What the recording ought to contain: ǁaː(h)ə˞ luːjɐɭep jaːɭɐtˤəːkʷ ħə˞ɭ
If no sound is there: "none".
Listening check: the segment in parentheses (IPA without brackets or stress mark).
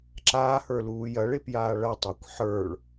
h